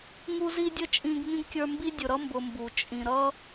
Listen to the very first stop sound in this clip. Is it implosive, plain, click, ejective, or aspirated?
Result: plain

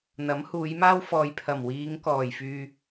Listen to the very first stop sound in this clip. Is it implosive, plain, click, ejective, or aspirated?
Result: aspirated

